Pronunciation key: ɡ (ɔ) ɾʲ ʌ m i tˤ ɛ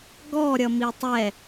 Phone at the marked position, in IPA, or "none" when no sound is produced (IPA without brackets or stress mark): ɔ